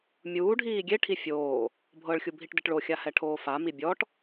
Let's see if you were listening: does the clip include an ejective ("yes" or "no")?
no